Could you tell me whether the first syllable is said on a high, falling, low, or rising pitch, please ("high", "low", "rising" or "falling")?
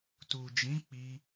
low